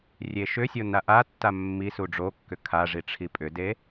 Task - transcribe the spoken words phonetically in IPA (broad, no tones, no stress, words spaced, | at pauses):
rʲeʃʏsʲo naʔatːa mːi suɖ͡ʐokːʏ kʰaʐi ʈ͡ʂʰipʼʏde